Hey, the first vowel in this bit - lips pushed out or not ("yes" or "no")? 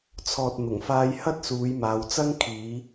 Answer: yes